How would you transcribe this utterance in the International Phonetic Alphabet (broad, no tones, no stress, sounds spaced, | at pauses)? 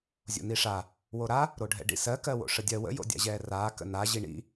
zʲ o̰ n i ʂ a | w o ɾ a | ɾ o ɖʱ ɛ̰ ɖ ḭ s ɜ k ɜ w o̰ ʂ ə dʲ ɜ w ə̰ j o̰ dʲ a̰ ʑ ɛː r aː k ə̰ n a ʑ i ɳ ḭ